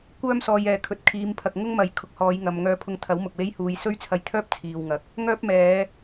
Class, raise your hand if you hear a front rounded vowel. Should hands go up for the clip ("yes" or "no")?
yes